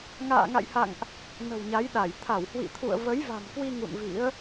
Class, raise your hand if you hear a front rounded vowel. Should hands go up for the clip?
no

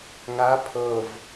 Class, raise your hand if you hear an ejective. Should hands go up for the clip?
no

